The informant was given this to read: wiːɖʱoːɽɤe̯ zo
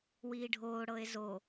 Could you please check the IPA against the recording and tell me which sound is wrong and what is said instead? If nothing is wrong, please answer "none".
none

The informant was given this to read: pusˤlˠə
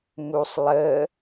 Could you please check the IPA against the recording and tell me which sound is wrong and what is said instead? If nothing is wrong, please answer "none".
p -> m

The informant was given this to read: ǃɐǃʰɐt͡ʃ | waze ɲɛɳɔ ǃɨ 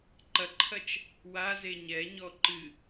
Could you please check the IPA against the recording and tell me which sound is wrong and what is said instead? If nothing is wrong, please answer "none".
ɳ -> ɲ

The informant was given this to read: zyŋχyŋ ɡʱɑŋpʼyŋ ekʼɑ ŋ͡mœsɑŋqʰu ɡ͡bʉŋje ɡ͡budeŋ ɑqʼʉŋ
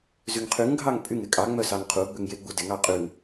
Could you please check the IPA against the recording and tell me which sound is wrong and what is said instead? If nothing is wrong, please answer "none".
χ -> qʰ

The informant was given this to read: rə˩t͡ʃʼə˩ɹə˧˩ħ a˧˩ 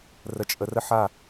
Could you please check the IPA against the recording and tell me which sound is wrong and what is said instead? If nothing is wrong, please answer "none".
ɹ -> r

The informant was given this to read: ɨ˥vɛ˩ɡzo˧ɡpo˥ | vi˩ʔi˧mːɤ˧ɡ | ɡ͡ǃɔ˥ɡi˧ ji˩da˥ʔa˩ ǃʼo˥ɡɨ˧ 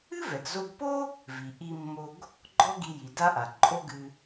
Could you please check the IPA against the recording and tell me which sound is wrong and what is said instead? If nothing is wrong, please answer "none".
ɤ˧ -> o˧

